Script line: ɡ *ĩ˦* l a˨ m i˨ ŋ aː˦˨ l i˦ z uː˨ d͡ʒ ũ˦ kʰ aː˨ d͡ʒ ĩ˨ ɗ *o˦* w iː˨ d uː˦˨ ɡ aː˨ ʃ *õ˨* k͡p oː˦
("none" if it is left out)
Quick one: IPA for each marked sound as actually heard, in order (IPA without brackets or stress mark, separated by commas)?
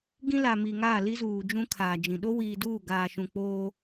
ĩ˦, o˦, ũ˨